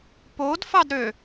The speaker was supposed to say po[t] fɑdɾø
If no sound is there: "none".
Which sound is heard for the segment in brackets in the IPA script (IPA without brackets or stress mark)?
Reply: d